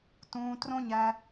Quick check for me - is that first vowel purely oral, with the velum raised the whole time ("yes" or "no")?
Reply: no